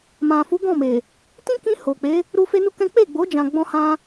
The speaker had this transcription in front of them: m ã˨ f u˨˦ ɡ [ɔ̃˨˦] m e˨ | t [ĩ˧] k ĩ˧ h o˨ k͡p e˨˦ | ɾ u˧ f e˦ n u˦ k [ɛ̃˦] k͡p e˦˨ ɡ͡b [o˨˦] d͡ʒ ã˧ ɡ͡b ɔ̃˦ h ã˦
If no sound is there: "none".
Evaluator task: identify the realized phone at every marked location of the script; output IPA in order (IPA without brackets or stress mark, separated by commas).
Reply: ɔ̃˦˨, ĩ˦, ɛ̃˦, o˨˦